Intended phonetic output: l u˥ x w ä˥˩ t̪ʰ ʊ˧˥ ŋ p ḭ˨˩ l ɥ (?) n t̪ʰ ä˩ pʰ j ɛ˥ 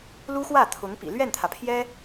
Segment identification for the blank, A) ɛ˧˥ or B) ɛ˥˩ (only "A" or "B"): B